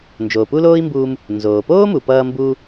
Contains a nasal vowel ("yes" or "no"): no